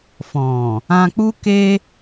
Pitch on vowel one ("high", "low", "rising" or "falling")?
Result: low